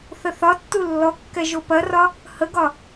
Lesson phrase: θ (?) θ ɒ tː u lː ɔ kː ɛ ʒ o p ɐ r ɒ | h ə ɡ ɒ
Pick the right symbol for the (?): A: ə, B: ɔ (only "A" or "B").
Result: A